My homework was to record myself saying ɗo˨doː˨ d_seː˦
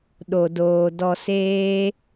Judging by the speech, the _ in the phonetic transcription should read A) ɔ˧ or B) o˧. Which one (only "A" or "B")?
A